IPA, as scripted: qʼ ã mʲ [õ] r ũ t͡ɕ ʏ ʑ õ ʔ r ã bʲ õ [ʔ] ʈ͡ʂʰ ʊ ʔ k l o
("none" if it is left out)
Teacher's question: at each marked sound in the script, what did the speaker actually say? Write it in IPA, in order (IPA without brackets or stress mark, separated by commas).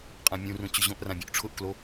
ũ, ʔ